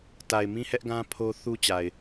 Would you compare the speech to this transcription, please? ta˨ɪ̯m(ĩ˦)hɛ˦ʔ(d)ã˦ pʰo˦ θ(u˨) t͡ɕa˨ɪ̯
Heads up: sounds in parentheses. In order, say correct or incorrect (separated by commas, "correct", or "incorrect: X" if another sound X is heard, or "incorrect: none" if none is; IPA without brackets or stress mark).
correct, incorrect: ɡ, incorrect: u˦